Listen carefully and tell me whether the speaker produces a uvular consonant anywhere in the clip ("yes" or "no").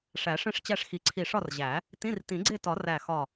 no